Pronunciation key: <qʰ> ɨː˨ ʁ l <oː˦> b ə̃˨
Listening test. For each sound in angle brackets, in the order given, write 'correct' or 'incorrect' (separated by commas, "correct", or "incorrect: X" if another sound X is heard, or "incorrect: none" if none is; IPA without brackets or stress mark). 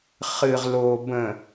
incorrect: χ, incorrect: oː˨